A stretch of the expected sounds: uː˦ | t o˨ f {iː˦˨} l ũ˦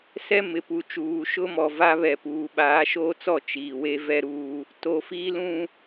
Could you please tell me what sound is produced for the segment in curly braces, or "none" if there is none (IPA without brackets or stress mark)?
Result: iː˦